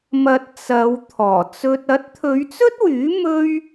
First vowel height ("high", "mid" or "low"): low